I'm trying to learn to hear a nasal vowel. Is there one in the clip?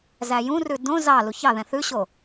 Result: yes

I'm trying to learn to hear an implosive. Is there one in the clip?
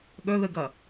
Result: yes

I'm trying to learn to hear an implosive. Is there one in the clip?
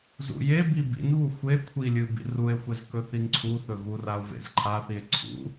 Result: no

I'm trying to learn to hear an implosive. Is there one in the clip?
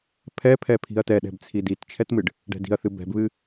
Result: yes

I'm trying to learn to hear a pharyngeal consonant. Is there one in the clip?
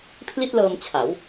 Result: no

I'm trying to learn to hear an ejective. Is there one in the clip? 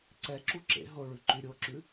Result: no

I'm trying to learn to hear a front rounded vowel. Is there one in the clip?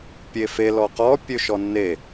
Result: yes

